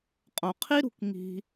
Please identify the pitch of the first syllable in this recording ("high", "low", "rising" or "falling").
low